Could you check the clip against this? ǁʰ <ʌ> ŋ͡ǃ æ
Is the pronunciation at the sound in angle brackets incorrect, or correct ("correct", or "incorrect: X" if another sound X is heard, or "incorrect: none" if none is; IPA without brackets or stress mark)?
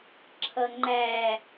correct